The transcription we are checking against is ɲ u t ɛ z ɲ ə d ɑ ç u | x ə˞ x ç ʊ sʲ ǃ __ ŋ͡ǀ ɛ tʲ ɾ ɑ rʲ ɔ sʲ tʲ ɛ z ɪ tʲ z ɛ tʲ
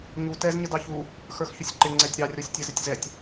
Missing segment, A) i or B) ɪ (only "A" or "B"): B